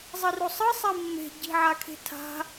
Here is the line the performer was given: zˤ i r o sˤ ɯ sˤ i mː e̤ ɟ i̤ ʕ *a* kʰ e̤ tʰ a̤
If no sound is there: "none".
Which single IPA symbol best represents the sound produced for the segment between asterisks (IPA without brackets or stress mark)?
a